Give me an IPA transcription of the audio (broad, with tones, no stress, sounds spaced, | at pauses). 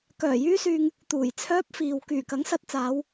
k œː˨˩ j yː˥ s yː˧ ŋ | t̪ uː˨˩ j t͡sʰ œː˥ p̚ f iː˨ w k yː˨˩ k ɐ˨˥ ŋ s ɐ˧ t̚ t͡s aː˨˧ w